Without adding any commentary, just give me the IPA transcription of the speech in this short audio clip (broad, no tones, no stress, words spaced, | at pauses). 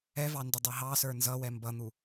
ɛvɑ ndʊdˤɛɦɑsə˞ nzʌwɛ mbʌn̪u